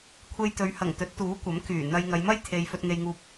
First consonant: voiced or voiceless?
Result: voiceless